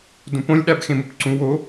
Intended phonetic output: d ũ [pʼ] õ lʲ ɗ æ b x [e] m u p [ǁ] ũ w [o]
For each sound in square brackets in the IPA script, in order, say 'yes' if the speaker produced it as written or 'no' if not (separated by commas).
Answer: no, no, no, yes